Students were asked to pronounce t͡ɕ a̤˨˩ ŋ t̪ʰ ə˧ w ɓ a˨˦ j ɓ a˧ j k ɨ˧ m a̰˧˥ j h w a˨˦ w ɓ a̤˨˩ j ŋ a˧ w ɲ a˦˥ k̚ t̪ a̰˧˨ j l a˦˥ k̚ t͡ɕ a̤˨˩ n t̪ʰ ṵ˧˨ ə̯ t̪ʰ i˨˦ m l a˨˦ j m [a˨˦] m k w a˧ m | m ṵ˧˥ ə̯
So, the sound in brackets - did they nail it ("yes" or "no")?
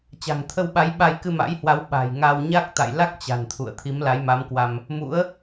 yes